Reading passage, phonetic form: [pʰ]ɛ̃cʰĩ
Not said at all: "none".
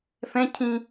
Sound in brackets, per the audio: f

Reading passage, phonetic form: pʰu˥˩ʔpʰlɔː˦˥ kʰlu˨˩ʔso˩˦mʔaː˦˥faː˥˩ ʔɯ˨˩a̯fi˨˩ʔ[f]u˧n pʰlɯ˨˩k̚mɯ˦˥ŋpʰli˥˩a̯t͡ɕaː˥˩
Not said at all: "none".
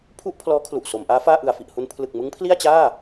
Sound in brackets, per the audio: h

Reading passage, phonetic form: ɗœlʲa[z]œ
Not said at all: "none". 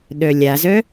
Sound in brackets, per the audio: z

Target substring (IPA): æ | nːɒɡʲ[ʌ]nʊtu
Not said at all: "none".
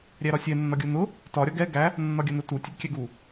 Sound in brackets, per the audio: ʌ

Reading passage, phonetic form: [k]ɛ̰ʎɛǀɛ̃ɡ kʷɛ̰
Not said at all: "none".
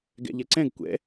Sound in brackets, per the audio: ɡ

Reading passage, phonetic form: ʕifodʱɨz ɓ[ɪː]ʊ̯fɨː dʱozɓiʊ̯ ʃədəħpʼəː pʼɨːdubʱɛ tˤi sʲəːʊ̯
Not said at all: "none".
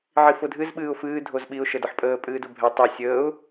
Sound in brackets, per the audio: ɨː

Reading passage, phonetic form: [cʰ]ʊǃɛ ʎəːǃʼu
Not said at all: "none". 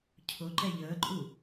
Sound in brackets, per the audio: cʰ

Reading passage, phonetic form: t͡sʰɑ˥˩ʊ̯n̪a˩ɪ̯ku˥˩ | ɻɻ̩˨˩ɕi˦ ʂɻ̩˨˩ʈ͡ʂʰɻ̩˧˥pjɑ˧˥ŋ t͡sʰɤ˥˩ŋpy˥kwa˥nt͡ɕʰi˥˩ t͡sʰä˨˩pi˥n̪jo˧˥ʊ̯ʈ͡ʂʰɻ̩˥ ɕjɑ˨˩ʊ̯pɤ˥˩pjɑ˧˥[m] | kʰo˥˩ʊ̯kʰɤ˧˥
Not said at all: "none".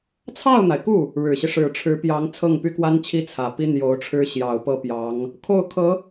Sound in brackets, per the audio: ŋ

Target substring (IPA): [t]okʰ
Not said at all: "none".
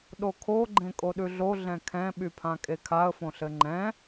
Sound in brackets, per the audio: ɗ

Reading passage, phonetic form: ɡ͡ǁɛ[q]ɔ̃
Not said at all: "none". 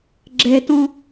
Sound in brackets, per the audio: t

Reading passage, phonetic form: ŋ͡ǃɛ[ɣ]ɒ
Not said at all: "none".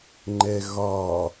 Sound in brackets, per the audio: ɣ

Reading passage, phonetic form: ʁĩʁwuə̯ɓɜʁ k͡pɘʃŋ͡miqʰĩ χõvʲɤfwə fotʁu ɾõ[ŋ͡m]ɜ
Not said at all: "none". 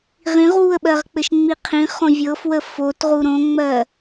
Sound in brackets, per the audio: ŋ͡m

